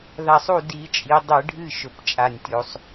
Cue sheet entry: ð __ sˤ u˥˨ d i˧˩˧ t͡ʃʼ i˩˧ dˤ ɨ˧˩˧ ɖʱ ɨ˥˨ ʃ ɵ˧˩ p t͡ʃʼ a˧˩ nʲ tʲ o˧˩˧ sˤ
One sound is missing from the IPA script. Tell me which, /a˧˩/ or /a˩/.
a˧˩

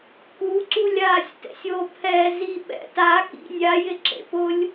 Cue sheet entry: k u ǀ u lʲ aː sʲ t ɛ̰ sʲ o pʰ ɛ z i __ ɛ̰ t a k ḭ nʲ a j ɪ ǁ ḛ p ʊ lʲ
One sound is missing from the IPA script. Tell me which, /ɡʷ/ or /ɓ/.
ɓ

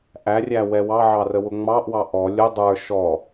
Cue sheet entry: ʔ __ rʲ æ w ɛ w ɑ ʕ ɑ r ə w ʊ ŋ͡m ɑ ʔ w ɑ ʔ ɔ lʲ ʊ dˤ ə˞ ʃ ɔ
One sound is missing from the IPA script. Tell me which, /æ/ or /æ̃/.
æ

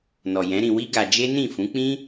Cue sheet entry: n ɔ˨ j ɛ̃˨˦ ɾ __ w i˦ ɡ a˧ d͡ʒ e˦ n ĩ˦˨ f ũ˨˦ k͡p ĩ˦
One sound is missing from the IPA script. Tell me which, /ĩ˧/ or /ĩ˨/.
ĩ˧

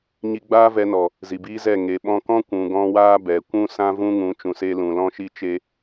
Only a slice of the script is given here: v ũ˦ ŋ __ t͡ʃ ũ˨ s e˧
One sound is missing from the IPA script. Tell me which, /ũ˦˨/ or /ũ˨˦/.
ũ˨˦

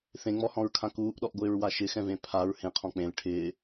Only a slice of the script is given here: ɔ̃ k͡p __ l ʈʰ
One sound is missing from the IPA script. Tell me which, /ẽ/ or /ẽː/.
ẽ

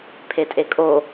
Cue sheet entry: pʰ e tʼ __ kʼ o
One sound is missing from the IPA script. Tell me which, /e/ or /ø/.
e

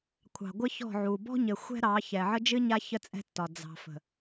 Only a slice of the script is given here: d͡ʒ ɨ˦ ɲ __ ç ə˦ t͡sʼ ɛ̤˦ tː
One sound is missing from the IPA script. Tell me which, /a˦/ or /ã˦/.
a˦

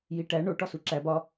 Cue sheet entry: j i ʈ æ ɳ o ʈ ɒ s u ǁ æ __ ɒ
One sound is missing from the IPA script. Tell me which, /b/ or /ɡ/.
b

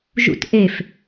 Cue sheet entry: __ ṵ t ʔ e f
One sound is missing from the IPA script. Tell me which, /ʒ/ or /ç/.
ʒ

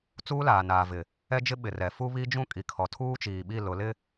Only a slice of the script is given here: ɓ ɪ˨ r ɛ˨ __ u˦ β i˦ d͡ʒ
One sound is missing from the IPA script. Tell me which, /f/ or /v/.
f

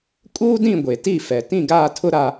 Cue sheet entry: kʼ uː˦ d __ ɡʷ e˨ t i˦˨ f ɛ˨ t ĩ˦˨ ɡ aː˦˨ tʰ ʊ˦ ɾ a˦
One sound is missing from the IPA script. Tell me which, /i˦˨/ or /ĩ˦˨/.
ĩ˦˨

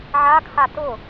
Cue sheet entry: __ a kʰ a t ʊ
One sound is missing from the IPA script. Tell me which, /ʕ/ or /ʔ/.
ʕ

